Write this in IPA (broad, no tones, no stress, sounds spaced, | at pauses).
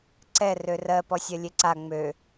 ǀ ɛ r ø r ɜ p ɔ sʲ ɜ lʲ e ǀ a ŋ͡m ø